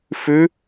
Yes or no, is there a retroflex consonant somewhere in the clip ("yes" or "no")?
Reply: no